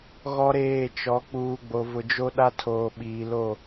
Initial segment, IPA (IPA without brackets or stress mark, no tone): ɣ